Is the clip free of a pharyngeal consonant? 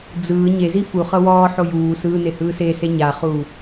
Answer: no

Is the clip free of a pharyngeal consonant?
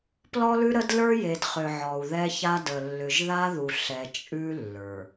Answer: no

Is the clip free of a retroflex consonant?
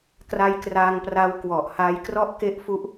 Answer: yes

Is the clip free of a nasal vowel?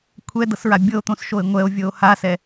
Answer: no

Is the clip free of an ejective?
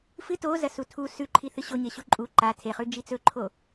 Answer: no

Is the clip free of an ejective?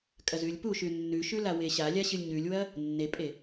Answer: no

